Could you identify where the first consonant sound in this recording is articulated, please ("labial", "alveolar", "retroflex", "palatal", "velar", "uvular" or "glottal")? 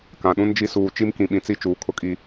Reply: velar